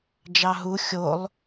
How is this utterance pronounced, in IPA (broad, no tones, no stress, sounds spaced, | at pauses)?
d͡ʒ ɑ ɦ u xʲ o lˠ